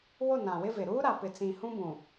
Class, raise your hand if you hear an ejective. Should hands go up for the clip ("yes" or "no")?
no